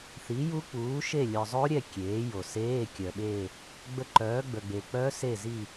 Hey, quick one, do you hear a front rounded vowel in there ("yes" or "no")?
yes